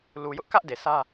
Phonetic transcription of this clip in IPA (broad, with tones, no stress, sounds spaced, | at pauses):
l u˨ j ʊ˦ ʔ k ä˦ ʔ d e˨ s ä˦